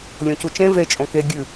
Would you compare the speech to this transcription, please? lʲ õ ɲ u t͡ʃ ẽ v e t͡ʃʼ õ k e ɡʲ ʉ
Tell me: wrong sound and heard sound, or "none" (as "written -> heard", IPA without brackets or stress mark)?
ɲ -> c